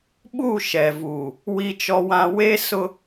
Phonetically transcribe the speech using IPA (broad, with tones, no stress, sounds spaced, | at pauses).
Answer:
ɓ u˦˨ ʃ ɛ˨ v uː˨ | w i˦ t͡ʃ ɔ˦ w ã˦ w e˦ s ʊ˦